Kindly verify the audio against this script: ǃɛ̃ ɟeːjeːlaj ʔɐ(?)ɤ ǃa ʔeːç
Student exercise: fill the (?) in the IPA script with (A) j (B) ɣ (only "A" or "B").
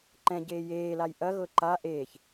B